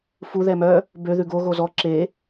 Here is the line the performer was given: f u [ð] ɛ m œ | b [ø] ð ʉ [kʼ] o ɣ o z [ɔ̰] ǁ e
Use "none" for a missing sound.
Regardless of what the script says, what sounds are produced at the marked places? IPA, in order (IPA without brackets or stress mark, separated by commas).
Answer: ð, ø, ɡ, ɔ